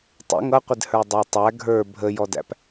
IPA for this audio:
tˤ ə̰ ŋ ʌ qʷ ɪ d h ə˞ dˤ æ tˤ æ ɡʱ ə˞ bʱ ə j ɔ d æ̰ p

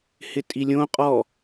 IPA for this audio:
h ɪ tʼ i lʲ õ qʼ ɔ

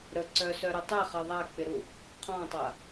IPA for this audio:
ɾ ə ǀ œ s œ ɾ ə tˤ ə χ ə ðˤ a k͡p ɪ ɾ u | qʰ ɔ̃ tˤ a

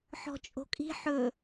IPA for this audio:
ħ ɔ̤ t͡ʃʼ o̤ kʼ i̤ ħ ɵ

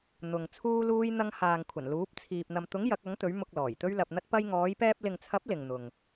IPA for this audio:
n̪ ʊ˨ ŋ t͡sʰ uː˥ l uː˥ j n̪ ɐ˥ ŋ h aː˨ ŋ kʷʰ ɐ˨˩ n l uː˨˥ p̚ t͡sʰ iː˨ p̚ n̪ ɐ˨ m t̪ ʊ˨˥ ŋ j ɐ˨˥ k̚ ɐ˨˥ ŋ t̪ ɵ˨˥ ɥ m ʊ˧ k̚ l ɔː˨˩ j t̪ ɵ˥ ɥ l ɐ˧ p̚ n̪ ɐ˥ t̚ p ɐ˧ j ŋ ɔː˨˧ j p ɛː˧ p̚ l ɪ˨ ŋ t͡sʰ ɐ˨˥ p̚ l ɪ˨ ŋ n̪ ʊ˨ ŋ

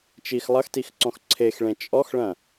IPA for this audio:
t͡ʃ i x lˠ ɐ x t i x ǀ ɔ̃ x ǀʰ e x ɭ ẽ t͡ʃʼ ɔ x ɭ ɐ̃

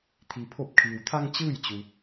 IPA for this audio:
t̪ʰ i˩ pʰ o˧˩ p̚ kʰ iː˩ w t̪ʰ a˧ ŋ t͡ɕ ɯː˥˨ j t͡ɕ u˩

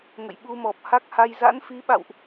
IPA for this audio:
ŋ ə̰˧˨ j ɓ u˧ m ɔ˨˩ p̚ h a˦˥ k̚ h a˧ j z a̰˧˥ n f i˨˦ ɓ a̰˧˨ w ʔ

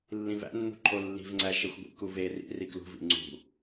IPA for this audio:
lː ĩ v æ̰ nː ṳ ǃʰ o lː i̤ v ŋ͡ǀ æ ʃ e xʷ ɡʷ ḭ k u v e r ḭ r i k l ṳ v ḭ ŋ͡ǀ ṳ

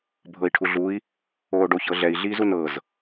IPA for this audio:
bʱ ɤ i̯ ʈʰ u ɮ u i̯ | oː ɖ o ç ɤ ɮ ɛ i̯ ɮ iː z u n ɤ z

